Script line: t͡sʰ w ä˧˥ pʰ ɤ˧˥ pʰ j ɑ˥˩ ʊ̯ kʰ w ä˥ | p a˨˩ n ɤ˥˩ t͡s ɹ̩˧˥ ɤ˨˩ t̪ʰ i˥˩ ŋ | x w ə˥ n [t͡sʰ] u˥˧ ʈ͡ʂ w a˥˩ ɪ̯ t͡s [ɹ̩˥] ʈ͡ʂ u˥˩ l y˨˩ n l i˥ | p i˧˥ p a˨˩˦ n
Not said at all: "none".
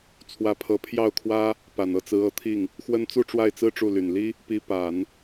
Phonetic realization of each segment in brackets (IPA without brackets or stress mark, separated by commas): t͡s, ɹ̩˥